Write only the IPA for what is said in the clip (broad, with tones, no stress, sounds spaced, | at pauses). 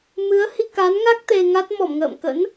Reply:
m ɨ˨˦ ə̯ h i˧ k a˨˦ n ŋ a˦˥ k̚ t̪ e˧ ŋ a˦˥ t̚ m ɔ˧˩ m ŋ ə̰ː˧˨ m k ə̰˧˥ n